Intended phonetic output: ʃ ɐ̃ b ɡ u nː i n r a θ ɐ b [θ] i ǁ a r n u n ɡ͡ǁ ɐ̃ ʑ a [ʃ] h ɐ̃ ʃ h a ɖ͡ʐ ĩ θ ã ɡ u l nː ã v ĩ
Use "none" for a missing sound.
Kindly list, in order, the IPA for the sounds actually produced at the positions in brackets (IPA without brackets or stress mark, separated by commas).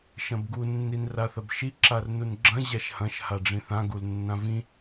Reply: ʃ, ʃ